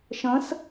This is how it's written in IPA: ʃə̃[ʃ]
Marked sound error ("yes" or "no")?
yes